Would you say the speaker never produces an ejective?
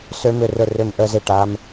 yes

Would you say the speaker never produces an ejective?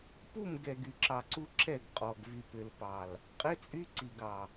no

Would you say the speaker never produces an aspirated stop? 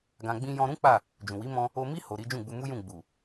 yes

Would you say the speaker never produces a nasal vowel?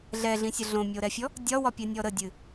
no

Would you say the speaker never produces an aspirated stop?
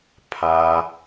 no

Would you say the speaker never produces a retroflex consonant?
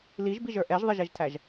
yes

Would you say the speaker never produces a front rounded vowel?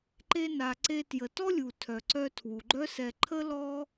no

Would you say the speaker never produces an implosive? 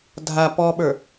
no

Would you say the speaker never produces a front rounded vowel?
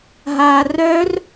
no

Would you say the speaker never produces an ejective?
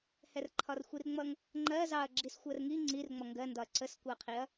yes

